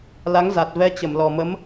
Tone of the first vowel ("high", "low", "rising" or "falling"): rising